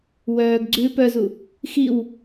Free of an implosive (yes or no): yes